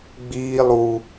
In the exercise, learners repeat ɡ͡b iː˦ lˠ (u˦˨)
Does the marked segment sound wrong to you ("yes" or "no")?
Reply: yes